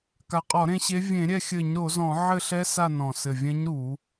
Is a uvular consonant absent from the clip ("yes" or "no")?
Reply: no